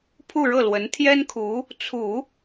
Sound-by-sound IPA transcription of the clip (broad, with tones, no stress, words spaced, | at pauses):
pʰu˥˧ɻɤ˥˩lwə˧˥n t̪ʰjɛ˥nkʰu˧˥ | t͡sʰu˨˩˦